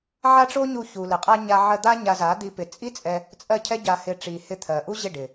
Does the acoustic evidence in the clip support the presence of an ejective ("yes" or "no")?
yes